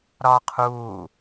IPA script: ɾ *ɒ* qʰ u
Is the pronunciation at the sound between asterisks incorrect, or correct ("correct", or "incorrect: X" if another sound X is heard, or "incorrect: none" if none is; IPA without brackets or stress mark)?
correct